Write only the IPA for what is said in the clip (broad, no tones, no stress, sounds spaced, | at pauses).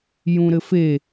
j ũ ɾ ɘ f e